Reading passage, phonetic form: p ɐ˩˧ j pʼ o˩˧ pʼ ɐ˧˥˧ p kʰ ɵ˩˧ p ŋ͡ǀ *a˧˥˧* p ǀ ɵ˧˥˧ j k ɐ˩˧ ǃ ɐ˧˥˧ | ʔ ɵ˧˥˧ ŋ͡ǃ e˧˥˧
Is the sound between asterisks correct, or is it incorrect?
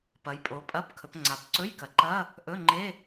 incorrect